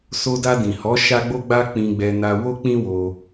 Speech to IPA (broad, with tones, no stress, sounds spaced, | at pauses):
s o˧ d a˧ d ĩ˨ h ɔ˨˦ ʃ a˦ ɡ͡b o˦ ɡ͡b a˦ k͡p ĩ˧ ɡ͡b ɛ˧ n a˧ w o˦ k͡p ĩ˦ w o˧